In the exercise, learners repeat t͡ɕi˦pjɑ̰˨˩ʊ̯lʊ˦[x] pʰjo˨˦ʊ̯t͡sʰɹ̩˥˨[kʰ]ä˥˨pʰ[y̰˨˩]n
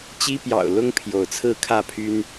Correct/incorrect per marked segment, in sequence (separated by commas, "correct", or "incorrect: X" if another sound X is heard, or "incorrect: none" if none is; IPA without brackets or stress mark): incorrect: ŋ, correct, incorrect: y˦